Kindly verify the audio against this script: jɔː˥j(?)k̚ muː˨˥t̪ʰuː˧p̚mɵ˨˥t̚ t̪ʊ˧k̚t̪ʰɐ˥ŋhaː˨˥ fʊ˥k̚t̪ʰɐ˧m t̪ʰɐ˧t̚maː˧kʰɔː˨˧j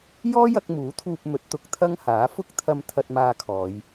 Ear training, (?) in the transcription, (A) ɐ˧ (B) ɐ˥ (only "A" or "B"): A